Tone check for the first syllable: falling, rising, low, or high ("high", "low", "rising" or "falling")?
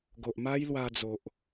low